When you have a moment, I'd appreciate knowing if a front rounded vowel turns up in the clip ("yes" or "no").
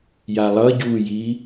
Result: no